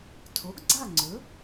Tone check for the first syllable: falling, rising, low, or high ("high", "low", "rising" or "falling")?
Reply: rising